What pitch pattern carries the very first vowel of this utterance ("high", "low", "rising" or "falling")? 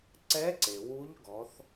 rising